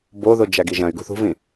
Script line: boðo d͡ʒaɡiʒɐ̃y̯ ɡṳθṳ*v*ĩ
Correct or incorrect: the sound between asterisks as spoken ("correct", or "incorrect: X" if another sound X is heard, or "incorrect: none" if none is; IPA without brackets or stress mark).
correct